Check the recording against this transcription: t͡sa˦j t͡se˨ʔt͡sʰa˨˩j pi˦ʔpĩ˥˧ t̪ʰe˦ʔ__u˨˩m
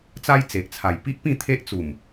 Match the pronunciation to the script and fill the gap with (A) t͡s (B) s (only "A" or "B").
A